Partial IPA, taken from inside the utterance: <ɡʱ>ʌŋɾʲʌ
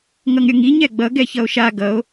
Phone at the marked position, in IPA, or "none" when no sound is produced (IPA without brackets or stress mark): ŋ